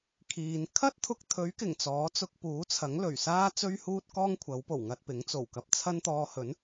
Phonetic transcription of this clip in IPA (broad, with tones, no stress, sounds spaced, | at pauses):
kʰ iː˨˧ n kʰ ɐ˥ t̚ t̪ʰ ʊ˧ k̚ t̪ʰ ɵ˨˥ ɥ k ɪ˨˩ ŋ t͡s ɔː˨˥ t͡s ʊ˧ k̚ p uː˨˥ t͡sʰ ɐ˨˥ ŋ l ɵ˨˩ ɥ s aː˥ t͡s ɵ˥ ɥ h uː˥ t̚ k ɔː˥ ŋ kʷʰ ɐ˨˥ w p o˨˩ w ŋ ɐ˧ t̚ p ɪ˨˥ ŋ t͡s o˨˩ w k ɐ˨ p̚ t͡sʰ ɐ˥ n t̪ ɔː˧ h ɵ˨˥ n